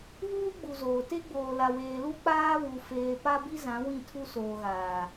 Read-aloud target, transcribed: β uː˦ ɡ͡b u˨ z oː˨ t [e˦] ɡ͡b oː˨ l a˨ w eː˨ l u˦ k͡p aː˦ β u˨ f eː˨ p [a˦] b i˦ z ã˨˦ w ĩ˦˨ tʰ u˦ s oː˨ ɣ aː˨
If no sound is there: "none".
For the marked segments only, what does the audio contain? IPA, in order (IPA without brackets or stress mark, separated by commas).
e˦, a˦